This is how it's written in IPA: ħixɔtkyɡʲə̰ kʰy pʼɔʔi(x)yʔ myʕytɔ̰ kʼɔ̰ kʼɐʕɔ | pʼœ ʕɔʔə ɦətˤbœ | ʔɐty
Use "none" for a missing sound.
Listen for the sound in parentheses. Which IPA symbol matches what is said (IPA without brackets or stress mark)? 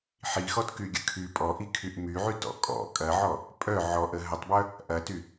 kʰ